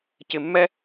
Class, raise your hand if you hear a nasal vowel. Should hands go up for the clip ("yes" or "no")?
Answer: no